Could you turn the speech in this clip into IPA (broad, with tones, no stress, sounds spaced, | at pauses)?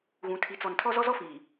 ɣ ũ˨ tʰ i˨ t͡s ɔ˨ n tʰ ɔ˦ z ɔ˦ z ɔ˦ f iː˨